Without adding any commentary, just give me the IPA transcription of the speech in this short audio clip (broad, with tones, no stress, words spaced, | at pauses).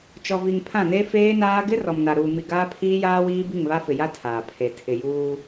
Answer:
t͡ʃɔ˨vi˨ŋ pʰã˦˨ne˦feː˦naː˦ ɡɪ˦ rɔ˨mna˨ɾuː˨ mi˨ ɡaː˦pʰiː˦jaː˦wiː˦ bi˦˨ŋβa˦fɪ˨ja˦ tʰaː˨pʰe˨ tʰɪ˨juː˦